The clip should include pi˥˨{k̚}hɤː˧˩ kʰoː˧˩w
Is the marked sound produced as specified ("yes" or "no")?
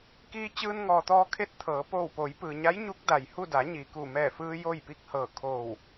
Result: yes